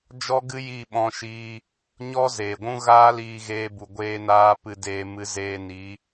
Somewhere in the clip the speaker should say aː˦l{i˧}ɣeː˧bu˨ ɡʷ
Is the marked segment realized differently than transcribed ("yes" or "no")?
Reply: yes